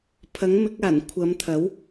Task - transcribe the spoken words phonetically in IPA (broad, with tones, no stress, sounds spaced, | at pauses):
pʰ ɐ˨˥ ŋ m ɪ˨˥ k̚ aː˨˩ n kʷʰ ɐ˨˧ m t̪ʰ ɐ˨˥ w